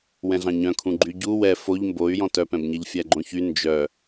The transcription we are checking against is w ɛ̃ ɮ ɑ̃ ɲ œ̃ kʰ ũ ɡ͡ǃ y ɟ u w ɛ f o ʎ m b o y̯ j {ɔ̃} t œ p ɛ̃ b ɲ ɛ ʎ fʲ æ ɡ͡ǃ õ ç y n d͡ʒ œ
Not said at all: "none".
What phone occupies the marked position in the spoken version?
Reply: ɔ̃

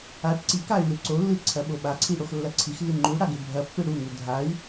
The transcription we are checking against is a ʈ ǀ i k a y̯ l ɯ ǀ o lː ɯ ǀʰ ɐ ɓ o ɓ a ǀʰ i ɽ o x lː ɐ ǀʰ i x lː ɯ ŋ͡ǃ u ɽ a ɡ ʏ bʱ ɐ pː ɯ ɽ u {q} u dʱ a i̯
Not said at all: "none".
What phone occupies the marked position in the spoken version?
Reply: ŋ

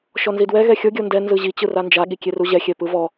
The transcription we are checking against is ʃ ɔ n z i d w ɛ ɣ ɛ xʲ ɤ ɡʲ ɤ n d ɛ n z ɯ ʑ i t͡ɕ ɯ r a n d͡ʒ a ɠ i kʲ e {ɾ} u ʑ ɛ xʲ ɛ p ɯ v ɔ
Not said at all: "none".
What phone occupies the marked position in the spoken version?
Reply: r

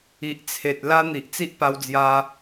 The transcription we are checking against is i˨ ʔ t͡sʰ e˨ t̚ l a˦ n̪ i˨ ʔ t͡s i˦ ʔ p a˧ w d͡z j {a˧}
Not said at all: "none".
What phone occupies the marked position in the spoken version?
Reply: a˧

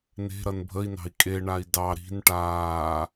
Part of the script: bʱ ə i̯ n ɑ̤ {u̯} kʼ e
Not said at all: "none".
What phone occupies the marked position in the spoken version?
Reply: i̯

